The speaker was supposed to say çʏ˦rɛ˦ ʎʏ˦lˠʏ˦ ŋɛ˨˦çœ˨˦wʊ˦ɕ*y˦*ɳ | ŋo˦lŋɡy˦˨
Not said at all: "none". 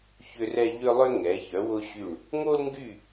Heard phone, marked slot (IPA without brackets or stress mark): y˦˨